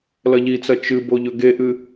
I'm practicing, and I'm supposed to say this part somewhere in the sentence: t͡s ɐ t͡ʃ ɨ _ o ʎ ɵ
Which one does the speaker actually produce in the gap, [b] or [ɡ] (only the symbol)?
b